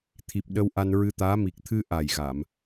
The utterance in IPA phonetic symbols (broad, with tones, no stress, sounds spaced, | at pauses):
t̪ʰ i˨˩ p̚ ɗ ə˧ w ʔ a˧ n ɹ ɨ˧ t̪ aː˧˥ m i˨˩ k̚ t̪ʰ ɨ˧ ʔ a˨˩ j ɣ a˨˩˨ m